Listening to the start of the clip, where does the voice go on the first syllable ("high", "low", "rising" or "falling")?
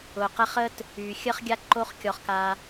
low